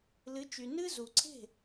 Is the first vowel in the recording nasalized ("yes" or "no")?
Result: no